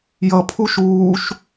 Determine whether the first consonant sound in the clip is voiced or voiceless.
voiced